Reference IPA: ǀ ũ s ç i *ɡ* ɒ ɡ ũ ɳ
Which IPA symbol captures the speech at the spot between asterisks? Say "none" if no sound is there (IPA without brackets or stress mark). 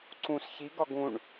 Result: ɡ